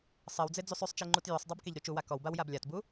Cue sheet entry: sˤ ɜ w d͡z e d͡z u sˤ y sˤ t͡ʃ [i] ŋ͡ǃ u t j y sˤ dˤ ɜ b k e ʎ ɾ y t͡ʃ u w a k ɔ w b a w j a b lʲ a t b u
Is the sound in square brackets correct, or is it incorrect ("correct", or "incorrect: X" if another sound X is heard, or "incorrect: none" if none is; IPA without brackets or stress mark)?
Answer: correct